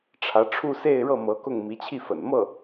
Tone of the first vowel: rising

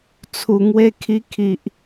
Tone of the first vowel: low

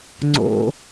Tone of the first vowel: low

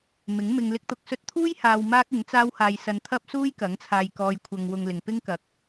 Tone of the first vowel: rising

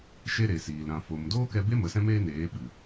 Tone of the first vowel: high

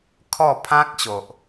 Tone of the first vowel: falling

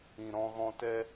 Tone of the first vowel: low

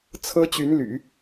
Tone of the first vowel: high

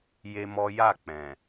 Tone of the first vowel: high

